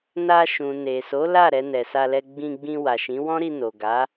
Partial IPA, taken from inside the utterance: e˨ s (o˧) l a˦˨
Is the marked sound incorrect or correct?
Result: incorrect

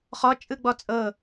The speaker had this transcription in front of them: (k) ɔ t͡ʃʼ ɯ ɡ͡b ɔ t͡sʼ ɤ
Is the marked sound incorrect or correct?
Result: incorrect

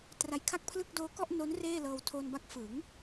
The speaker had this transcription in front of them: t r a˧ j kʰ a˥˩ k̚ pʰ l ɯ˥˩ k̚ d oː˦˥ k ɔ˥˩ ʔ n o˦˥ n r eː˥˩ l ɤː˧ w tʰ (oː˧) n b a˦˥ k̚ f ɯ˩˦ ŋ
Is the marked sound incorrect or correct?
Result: correct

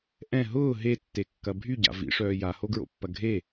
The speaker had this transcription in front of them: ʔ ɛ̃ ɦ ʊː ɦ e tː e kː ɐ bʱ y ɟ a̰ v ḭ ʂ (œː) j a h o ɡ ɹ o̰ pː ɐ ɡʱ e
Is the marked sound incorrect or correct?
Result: correct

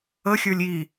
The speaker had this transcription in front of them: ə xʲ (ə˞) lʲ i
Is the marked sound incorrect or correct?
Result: correct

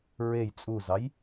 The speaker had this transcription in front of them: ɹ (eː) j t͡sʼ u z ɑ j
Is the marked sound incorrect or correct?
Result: incorrect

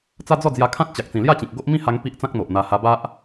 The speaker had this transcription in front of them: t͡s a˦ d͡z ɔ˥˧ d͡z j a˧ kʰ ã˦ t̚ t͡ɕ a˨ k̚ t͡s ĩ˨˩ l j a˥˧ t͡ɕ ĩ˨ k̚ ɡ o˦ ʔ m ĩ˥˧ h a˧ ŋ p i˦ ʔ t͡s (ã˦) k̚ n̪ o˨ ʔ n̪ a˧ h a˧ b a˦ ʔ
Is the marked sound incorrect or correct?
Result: correct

